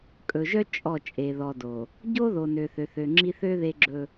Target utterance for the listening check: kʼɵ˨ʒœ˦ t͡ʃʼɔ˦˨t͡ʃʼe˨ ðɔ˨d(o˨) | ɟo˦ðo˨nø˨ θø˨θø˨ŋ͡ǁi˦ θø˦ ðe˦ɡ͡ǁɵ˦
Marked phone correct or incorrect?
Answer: correct